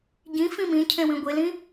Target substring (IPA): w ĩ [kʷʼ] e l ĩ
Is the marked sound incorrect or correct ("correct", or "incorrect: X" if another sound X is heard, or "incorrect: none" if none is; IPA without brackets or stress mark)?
incorrect: ɡʷ